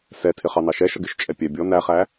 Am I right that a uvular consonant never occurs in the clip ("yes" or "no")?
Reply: no